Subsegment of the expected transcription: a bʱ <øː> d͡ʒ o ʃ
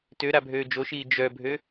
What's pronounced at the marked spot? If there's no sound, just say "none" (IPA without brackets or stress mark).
øː